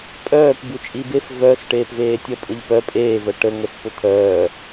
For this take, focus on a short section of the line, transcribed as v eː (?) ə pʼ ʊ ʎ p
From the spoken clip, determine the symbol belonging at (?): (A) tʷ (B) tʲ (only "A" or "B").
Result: B